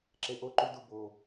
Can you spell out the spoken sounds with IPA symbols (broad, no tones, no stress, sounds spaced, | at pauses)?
ǁ e ʔ o ǃ u d u b o